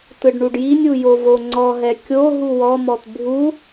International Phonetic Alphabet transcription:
t ɯ ɖ ɳ u ɖ j i nʲ u j o v o ŋ͡ǀ ɔ ɦ ɛ kʲ o ɦ u w ɔ m ɔ t bʱ u

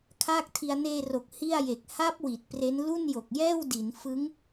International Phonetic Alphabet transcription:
kʰ aː˥˩ k̚ tʰ i˧ a̯ n eː˧ r o˨˩ k̚ h i˥˩ a̯ j e˨˩ k̚ h a˦˥ p̚ w i˨˩ t̚ p r e˦˥ n l u˥˩ n j o˨˩ k̚ j ɛː˥˩ w d i˩˦ n f ɯ˦˥ ŋ

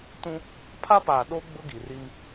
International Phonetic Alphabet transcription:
t ũ˦ | pʰ a˦ p aː˨ ɗ o˦ ɡ͡b ʊ˦ ɡ i˨ r i˦ m

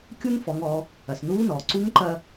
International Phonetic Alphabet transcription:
kʲ u˥ n f ɔ˩˧ ŋ ɔ˩˧ | ɐ˩ s n uː˧˥ n ɔː˩ ǀ u˧˥ ŋ ǃ ɐ˧

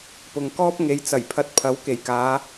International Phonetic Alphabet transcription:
p ʊ˨ ŋ k ɔː˥ p̚ ŋ e˨ j t͡s ɐ˨˩ j pʰ ɐ˧ t̚ pʰ ɐ˨˥ w k e˨˩ j k aː˨˧

